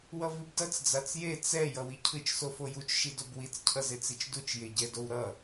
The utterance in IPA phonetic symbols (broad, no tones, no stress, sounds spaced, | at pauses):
w ʌ v i b d ʌ t͡s d͡z a t͡s j e t͡s ɛ j ʌ w i cʰ ɯ t͡ʃ s o f o j u t͡ʃ ʃ i d o b w i t͡s cʰ ʌ z e t͡s i t͡ʃ d u t͡ʃ j e ɟ ɛ d o w ɾ ʌ